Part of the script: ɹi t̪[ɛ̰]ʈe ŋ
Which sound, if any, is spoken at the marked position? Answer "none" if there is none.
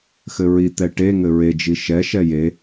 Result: ɛ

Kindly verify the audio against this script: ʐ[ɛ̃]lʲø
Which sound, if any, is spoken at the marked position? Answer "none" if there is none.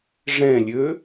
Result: ɛ̃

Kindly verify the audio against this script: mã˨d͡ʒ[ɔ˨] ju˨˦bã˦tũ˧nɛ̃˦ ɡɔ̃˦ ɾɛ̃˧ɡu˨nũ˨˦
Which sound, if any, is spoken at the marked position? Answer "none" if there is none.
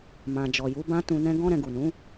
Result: ɔ˨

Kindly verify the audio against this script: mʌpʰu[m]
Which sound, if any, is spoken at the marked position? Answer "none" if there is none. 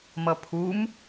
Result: m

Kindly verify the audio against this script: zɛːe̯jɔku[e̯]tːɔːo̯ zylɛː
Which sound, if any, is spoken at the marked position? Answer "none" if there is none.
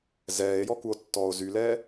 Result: o̯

